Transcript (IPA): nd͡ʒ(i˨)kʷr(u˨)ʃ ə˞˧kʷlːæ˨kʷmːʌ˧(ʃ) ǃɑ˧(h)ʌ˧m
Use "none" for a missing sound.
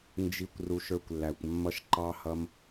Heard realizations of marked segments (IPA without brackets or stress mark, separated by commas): i˨, u˨, ʃ, h